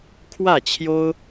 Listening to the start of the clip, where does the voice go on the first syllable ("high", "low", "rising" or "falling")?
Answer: falling